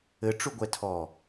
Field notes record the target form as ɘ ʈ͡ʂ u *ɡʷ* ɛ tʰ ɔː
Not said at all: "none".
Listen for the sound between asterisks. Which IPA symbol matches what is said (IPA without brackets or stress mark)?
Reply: ɡʷ